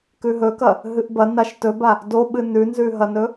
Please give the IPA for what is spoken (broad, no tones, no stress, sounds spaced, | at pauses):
k ʉ ɦ ɵ k ɐ | ɦ ɨ ʔ b ɐ n a ʃ t ɵ b a | d o ɓ ɨ n ʉ n z ʉ ɦ ɐ n ɵ